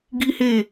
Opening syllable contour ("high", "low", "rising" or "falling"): high